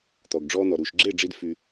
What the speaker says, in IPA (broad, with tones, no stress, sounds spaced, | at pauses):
t̪ ɔ˨ ɡ ɖ͡ʐ ɔː˧ n̪ ɔ˨ ɾ uː˨ ʃ ɡ͡ǁ e˦˨ ɖ͡ʐ i˧ d f y˧